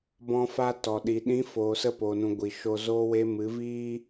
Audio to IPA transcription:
b ɔ̃˧ f a˧ t ɔ˨ ɗ i˨ ɗ ĩ˨˦ f oː˨ s ə˧ p o˨ n ũ˨ ɡʷ i˨ ʃ o˧ z oː˧ w e˧ m ɨ˨˦ v iː˦

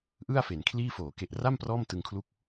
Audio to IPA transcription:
ʔ ɯ˥˩ a̯ f e˩˦ n kʰ l iː˥˩ f oː˩˦ k e˨˩ ʔ r a˥˩ m p r ɔː˥˩ m t ɯ˧ ŋ kʰ l u˥˩ k̚

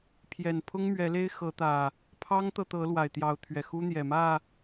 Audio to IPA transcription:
pʰ j ɛ˨˩ n pʰ ʊ˦ ŋ m ɥ ɛ˨˦ l e˦ ɪ̯ x ɤ˨˦ t̪ ä˨˩ | pʰ ɑ˦ ŋ t̪ ɤ˨ t̪ ɤ˨˦ l w a˨˩ ɪ̯ t̪ j ɑ˨˦ ʊ̯ t̪ʰ ɥ ɛ˨˩ x u˦ n̪ j ɛ˨˩ m ä˥˨

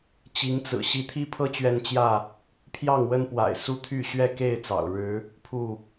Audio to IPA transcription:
t͡ɕ i˨˦ ŋ t͡s ɹ̩˨˩ ɕ i˨˦ t̪ʰ i˦ pʰ ɤ˦ t͡ɕ ɥ ɛ˨˦ n t͡ɕ j ä˥˨ | pʰ j ɑ˥˨ ŋ w ə˦ n p w a̰˨˩ ɪ̯ s u˦ t̪ʰ y˥˨ ɕ ɥ ɛ˥˨ k e˥˨ ɪ̯ t͡s ɑ̰˨˩ ʊ̯ ɻ ɻ̩˨˦ | pʰ u˥˨

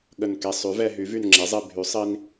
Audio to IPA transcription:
ɠ ə˧˩ n k e˧ sˤ y˩˥ v ɛ˧ ɦ y˩˥ v y˧˩ n ŋ͡ǁ e˩˥ zˤ i˧˩ bʱ y˩˥ sˤ i˧ n

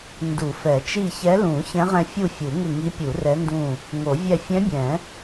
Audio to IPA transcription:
n d u˨˩˦ f ɛ˨˩˦ t͡ʃ i˦˨ ç ɛ˧˥ l ũ˨˩˦ ç ɛ̃˧˥ ʁ ɛ̃˦˨ fʲ u˦˨ fʲ u˨˩˦ ŋ ɪ˦˨ ŋ i˧˥ pʲ u˨˩˦ r ɛ˧˥ n d ũ˦˨ | ŋ o˨˩˦ vʲ ɛ˦˨ fʲ ɛ̃˧˥ bʲ ɛ̃˨˩˦

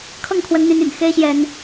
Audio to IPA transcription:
kʰ ɤ˥˨ ŋ kʰ w ə˨˦ n n̪ y˨˦ n y̰˨˩ n x e˦ ɪ̯ ɕ j ɛ˨˦ n

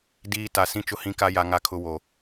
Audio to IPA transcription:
d iː˦ t a˨ s ĩ˦ t͡ʃ ʊ˦ h ĩ˦ k a˦ j a˦ ŋ a˦ kʰ ʊ˦ w o˨

